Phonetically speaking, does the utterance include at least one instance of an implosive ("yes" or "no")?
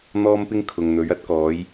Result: no